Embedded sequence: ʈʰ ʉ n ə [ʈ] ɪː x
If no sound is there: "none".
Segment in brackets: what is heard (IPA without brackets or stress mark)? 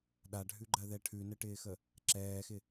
ʈ